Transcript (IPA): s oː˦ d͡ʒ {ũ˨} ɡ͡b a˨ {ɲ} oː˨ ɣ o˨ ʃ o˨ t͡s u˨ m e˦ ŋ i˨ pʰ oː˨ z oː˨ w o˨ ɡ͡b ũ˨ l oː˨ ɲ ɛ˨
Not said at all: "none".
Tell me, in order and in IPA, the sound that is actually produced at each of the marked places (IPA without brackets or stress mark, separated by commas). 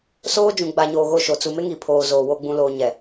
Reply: ũ˨, ɲ